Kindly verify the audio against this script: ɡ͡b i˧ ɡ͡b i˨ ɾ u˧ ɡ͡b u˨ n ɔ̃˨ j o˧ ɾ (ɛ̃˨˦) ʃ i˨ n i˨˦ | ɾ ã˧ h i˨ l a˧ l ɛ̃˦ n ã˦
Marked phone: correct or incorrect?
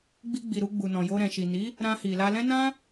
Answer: incorrect